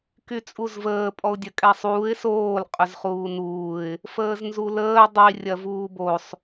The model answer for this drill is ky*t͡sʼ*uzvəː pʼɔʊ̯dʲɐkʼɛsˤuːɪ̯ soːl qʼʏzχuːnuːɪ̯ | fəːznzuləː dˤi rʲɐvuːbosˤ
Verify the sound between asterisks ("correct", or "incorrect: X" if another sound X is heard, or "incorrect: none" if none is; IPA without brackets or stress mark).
correct